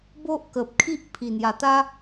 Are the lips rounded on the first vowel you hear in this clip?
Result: yes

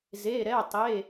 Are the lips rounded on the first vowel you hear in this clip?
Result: no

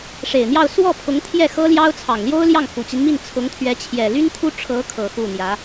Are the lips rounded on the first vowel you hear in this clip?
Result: no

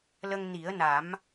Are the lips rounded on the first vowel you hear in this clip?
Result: no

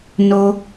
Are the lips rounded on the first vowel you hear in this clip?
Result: yes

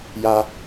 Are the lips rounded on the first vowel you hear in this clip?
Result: no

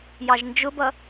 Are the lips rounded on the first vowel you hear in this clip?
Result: no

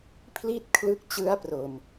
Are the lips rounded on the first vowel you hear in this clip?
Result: no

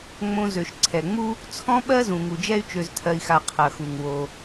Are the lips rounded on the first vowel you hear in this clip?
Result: yes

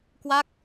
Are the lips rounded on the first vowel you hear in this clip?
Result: no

